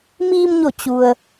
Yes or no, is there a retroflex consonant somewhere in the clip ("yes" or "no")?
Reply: no